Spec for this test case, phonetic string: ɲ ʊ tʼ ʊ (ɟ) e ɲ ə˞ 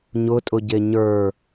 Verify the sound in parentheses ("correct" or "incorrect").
correct